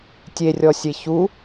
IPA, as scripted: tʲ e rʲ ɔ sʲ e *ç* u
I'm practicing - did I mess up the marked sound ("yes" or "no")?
no